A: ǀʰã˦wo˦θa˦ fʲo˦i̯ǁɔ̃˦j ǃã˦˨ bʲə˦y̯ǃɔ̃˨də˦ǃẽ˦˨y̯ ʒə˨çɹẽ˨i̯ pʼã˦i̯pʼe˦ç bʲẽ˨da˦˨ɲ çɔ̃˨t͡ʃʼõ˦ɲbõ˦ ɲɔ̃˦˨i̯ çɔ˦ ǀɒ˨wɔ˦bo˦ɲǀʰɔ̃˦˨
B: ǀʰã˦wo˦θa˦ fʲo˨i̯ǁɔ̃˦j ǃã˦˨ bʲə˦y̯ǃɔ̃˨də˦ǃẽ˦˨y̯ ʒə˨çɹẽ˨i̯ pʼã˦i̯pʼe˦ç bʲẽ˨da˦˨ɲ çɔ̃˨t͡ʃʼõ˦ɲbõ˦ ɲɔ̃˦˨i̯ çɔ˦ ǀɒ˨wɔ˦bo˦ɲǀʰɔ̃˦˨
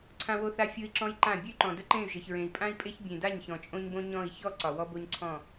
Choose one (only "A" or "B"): A